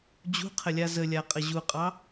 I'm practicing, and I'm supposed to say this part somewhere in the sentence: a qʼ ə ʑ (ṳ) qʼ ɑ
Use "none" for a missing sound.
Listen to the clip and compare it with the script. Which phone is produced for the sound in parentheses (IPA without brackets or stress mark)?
u